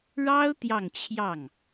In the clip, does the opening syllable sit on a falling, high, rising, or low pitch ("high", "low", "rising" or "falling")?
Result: high